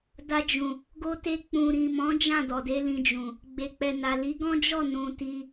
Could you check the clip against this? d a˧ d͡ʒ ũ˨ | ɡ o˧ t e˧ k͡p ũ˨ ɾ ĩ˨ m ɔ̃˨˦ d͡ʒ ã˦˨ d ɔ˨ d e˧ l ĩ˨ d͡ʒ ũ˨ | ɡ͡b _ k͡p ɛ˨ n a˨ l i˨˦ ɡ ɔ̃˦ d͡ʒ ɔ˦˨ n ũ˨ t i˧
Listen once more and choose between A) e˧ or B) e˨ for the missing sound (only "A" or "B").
B